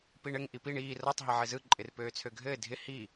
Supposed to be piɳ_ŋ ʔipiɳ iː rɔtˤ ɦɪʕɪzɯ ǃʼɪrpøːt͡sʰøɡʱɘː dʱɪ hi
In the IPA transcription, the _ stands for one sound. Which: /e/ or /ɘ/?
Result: ɘ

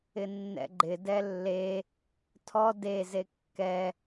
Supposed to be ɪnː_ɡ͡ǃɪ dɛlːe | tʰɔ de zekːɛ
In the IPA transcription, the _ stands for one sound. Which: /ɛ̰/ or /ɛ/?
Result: ɛ̰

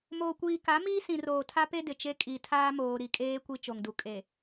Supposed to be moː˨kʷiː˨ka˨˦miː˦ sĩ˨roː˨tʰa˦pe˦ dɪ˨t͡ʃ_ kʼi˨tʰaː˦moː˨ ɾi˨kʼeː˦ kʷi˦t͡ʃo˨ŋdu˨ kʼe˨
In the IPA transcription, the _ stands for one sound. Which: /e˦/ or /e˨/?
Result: e˦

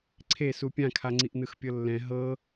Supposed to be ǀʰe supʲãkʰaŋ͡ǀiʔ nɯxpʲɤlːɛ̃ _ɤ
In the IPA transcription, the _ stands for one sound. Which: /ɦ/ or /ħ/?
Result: ɦ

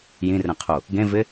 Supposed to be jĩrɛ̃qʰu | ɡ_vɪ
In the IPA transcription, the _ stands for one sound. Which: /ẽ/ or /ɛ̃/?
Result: ẽ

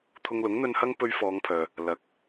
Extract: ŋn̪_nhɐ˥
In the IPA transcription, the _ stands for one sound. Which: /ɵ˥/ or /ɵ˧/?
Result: ɵ˧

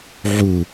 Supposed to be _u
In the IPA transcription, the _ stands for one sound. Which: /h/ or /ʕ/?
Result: ʕ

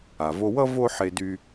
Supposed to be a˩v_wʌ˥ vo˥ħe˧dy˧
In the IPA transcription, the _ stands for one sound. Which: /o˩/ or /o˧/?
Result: o˧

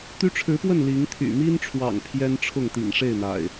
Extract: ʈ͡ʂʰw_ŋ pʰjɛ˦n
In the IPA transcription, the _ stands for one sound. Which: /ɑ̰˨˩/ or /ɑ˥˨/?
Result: ɑ̰˨˩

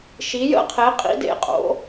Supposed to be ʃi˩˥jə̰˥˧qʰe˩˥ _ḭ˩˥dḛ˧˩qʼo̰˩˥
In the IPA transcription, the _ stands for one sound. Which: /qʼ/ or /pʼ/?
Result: qʼ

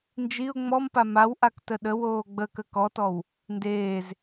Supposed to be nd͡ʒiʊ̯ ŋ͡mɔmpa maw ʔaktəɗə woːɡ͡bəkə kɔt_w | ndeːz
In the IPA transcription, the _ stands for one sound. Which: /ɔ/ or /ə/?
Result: ɔ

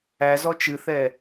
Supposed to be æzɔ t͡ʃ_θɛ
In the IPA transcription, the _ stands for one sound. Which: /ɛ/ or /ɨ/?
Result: ɨ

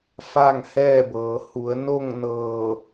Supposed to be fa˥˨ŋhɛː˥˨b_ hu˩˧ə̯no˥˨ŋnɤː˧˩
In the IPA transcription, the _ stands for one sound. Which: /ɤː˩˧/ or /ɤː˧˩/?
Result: ɤː˩˧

